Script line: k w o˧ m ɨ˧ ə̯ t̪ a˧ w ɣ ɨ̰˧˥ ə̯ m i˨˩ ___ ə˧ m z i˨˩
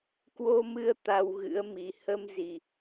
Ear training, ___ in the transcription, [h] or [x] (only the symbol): h